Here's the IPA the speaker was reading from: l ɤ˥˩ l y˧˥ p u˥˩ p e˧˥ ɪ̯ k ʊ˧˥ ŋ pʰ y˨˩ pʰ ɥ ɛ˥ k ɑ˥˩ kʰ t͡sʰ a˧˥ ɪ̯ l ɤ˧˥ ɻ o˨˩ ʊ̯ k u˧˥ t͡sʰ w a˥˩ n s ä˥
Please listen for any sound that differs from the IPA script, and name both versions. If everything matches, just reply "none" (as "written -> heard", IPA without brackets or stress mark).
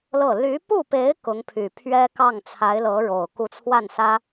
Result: kʰ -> ŋ